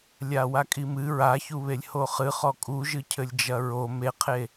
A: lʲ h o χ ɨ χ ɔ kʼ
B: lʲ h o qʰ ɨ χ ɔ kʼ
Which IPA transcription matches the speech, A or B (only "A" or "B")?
A